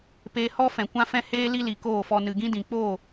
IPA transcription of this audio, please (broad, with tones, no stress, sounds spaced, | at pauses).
p eː˧ h ɔ˦ f ɛ̃˨ kʷ ã˦ f ɛ̃˦ h eː˦ l i˦ l i˨ k oː˦˨ f ɔ˧ n ɨ˨ ɡ ĩ˦ d ĩ˨ k͡p o˦˨